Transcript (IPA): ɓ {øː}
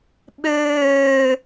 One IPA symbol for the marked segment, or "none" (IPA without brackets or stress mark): øː